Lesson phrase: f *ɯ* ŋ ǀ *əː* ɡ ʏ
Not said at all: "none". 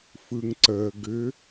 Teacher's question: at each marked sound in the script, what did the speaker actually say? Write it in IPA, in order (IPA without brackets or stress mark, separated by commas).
ɯ, əː